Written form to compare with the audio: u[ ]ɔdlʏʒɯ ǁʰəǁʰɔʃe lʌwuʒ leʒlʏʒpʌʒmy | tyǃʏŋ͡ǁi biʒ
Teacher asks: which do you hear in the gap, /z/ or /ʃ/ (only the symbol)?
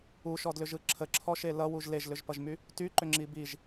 ʃ